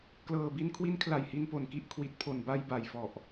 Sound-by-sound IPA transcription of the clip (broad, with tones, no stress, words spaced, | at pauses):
klɤː˨˩bi˧nkʰwi˦˥n kʰla˨˩jhi˧npo˨˩nki˦˥ʔ kʰwi˨˩t̚pʰo˨˩nba˧j ba˨˩jfɔ˨˩ʔ